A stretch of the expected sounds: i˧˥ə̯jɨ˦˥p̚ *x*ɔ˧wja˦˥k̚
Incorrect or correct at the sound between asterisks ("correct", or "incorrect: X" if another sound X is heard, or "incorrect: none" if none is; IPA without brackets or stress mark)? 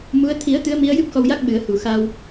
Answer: correct